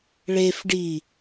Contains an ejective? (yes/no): no